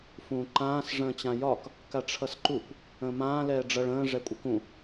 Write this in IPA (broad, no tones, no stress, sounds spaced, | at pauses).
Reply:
f ũː ǃ ãː s ʐ ə̃ː t͡ɕ ã j ɒ k | k a ʈ͡ʂʰ ʌ s ǃ u kʷ | ə̃ː m ãː l ɛː ɖ͡ʐ ʌ ɭ ə̃ː ʐ ɛ kʷʼ ə k ũ